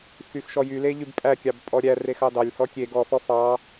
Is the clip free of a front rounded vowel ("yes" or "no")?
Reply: no